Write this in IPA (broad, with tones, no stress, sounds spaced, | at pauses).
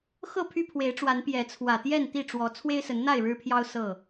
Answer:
x ɤ˥˨ pʰ y˦ pʰ w e˨˦ ɪ̯ ʈ͡ʂ w a˨˦ n p j ɛ˨˦ t͡sʰ w ä˨˩ t̪ j ɛ˥˨ n t̪ i˥˨ ʈ͡ʂ w ɔ˨˦ t͡sʰ w e˦ ɪ̯ s ə˨˦ n n̪ a˥˨ ɪ̯ ɻ ɻ̩˦ pʰ j ɑ˦ ʊ̯ s ɤ˥˨